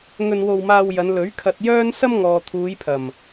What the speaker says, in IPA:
ŋ ɵ˧ n w o˧ w m aː˧ w j ɐ˨˧ n l ɵ˨˥ ɥ kʰ ɐ˧ t̚ j œː˥ n s ɐ˥ m ŋ ɔː˨ t̪ʰ uː˨˧ j pʰ ɐ˨˩ m

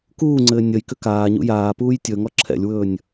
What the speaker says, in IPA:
k uː ŋ͡ǀ ɘː nʲ ə j k ʏ k aː ɲ ṵ j aː p uː j tʲ ɵ ŋ ɔ ǁʰ ɛ̰ lʲ w ɵː nʲ

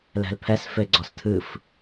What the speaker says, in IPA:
l ɛ̤ l pʰ ɛ s f e ɡ͡ǀ ɔ s tʰ ɨ f

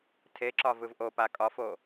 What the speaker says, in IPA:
tʰ e ǁ ɒ v ɯ v ʔ o p a kʼ ɒ f o

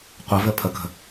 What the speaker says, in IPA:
qʷ ə v ɘ pʰ ə k ə̤

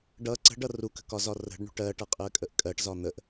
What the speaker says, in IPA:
ɖ ʌ ǀ ə̤ ɖ ʌ r u k ə̤ k ɒ z ɒ r ə̤ ɖ ɳ ṳ ʈ ɜ ʈ ʌ qʼ ɜ kʼ ə ʔ kʼ ɜ ʈ z ɒ n̪ ə ʔ

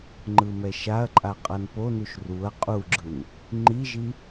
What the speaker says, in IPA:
ŋ͡ǃ ɯ m ɛ ʃ a ɐ̯ ǃʼ a qʼ ʌ n p o n u ʃ r u ɐ̯ qʼ u ɡ͡ǁ ɯ n | ŋ͡ǃ i ʒ i

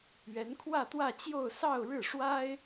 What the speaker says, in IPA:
ɥ ɛ˧˥ n kʰ w ä˥˧ t̪ w ä˥˧ t͡ɕ j o˥˧ ʊ̯ s ɑ˥˧ ʊ̯ ɻ ɻ̩˥˩ ʂ w a˥ ɪ̯

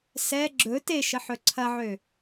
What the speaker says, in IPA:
s ɛ ɡ͡ǁ ɵ t e ʃ ə ħ ɵ ǀʰ ɐ ʕ ø

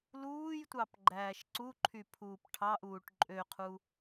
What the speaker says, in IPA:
l uː j tʷ ɑ p ɡ͡ǃ æː ʃ ǀ u ǃʰ y pʰ uː p ʈʰ ɑ ʔ uː ʈ ǃʼ ø qʰ u

